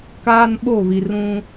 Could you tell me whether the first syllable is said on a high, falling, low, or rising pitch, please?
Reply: high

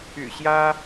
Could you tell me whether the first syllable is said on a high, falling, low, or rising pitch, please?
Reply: low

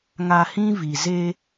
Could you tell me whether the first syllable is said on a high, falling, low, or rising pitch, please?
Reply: low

